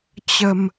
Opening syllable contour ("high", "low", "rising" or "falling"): low